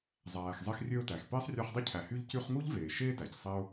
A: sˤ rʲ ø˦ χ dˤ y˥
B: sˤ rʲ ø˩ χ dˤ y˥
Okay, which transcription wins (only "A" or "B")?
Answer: A